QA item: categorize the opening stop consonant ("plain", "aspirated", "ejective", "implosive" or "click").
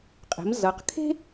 ejective